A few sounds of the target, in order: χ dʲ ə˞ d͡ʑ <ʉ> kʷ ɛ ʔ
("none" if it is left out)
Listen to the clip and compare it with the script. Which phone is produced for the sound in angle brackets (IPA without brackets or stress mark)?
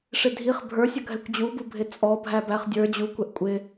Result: u